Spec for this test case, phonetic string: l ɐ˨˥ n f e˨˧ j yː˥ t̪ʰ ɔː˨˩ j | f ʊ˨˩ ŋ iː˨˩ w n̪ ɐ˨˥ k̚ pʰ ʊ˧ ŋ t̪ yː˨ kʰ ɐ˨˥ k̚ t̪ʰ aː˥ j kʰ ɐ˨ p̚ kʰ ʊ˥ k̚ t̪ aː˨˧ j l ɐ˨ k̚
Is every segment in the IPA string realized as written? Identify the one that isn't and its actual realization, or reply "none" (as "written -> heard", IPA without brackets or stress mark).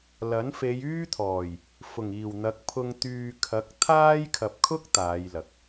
none